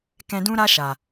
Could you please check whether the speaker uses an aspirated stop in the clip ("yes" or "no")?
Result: no